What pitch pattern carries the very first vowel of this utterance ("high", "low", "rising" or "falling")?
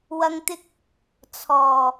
low